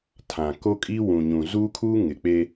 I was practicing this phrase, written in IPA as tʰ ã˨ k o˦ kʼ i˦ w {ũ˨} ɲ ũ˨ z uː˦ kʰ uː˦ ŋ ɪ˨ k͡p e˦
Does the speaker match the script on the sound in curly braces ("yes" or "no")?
yes